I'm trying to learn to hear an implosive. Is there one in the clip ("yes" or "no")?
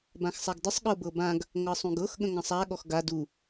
yes